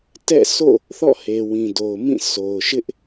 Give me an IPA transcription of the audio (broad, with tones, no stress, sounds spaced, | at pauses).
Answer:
t ɛ̰˦˨ sʰ o̰˦˨ | θ ɔ̰˦˨ h e˨ w ĩ˨ d o˨ ʊ̯ m ĩ˦˨ sʰ o˨ ʊ̯ ʃ ɪ˦ ʔ